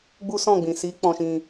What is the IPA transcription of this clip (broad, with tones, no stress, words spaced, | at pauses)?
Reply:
ɡ͡bu˦sɔ̃˦˨ɡ͡bĩ˨ si˨˦ k͡pɔ̃˧ʃĩ˧